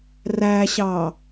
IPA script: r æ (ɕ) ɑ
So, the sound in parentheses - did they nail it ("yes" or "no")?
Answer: yes